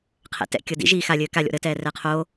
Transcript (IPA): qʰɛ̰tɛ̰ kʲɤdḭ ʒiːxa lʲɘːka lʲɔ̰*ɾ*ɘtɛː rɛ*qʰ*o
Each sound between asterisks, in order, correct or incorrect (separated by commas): correct, correct